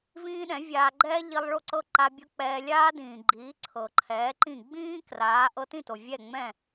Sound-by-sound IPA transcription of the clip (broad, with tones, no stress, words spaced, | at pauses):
vĩː˥ɗɛ̃˩˥vʲaː˧ ɡ͡ǃɛː˥ʎi˧lˠ ɭo˥˩ǀɤ˥˩ǃa˧ bʲɤ˥k͡pɛː˧ lʲaː˥dĩː˩ ɡ͡ǃiː˩˥ ǀʰɤ˩ǃʰɛː˩˥ǃĩ˥˩ ɡ͡bĩː˥ kraː˩˥ ʔɤ˧tĩ˥˩to˩ vʲɛ˥˩ŋ͡mɛ̃˥˩